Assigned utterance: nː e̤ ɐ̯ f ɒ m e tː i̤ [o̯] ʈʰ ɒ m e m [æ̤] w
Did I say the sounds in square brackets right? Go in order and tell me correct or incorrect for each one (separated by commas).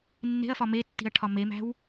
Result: incorrect, correct